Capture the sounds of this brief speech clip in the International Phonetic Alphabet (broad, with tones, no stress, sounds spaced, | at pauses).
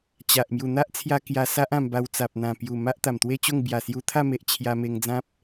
t͡ɕ a˨ ʔ m j u˨˩ n̪ a˦ ʔ t͡sʰ j a˧ k j a˧ s a˦ ʔ ã˧ m b a˧ w t͡s a˨ p̚ n̪ ã˨˩ p j u˨˩ m a˦ ʔ t̪ a˨˩ m t̪ w e˥˧ t͡ɕ o˥˧ ŋ b j a˨˩ s j u˧ t̪ʰ a˥˧ m e˨ ʔ t͡ɕʰ j a˧ m e˧ ŋ d͡z ã˦ p̚